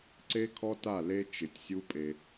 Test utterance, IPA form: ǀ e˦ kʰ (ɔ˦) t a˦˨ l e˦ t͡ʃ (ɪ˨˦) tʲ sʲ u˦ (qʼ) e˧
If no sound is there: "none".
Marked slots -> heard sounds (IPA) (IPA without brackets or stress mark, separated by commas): ɔ˦, ɪ˨˦, pʼ